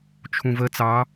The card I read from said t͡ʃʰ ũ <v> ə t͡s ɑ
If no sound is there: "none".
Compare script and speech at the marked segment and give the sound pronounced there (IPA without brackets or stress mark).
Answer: v